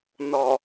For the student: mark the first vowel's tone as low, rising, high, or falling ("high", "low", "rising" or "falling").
low